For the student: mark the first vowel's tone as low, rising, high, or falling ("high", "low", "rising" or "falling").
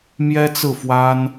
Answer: high